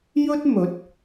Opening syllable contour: high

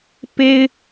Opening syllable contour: high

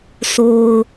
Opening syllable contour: low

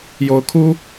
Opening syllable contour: rising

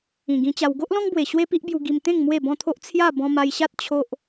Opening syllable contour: low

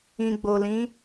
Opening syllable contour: low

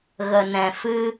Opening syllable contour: low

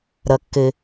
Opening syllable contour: low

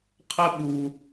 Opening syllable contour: high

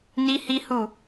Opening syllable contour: high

